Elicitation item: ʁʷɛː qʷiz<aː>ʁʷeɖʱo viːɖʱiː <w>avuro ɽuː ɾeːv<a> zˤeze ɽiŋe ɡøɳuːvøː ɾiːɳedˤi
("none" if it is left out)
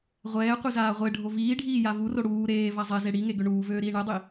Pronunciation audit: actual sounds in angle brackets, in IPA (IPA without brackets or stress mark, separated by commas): aː, j, a